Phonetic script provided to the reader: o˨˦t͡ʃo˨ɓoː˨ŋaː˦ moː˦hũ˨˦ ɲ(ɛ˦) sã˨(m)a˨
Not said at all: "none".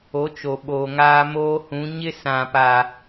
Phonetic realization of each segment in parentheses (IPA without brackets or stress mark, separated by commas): ɪ˦, p